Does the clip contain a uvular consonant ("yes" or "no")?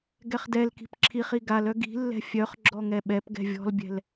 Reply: yes